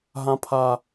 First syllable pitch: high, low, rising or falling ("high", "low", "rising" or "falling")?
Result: low